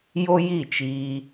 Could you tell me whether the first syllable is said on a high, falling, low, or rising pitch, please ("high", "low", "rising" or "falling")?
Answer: high